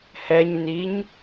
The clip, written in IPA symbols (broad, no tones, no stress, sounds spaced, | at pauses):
h ɛ ɲ n i ɲ